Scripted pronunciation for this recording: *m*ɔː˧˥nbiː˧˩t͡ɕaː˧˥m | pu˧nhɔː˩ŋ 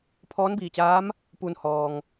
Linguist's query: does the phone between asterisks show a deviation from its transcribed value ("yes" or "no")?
yes